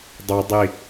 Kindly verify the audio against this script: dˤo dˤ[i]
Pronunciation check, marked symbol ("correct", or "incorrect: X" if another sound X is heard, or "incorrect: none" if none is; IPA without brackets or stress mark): correct